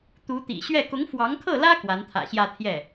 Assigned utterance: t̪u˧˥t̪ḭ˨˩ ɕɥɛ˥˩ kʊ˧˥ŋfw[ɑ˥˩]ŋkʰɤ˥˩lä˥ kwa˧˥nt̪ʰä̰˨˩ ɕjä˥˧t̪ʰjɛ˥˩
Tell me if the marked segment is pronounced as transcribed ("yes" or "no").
no